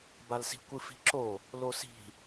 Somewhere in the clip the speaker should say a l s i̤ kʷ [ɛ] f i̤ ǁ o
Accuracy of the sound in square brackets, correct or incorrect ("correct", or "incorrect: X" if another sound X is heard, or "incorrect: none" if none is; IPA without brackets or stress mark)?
incorrect: ɨ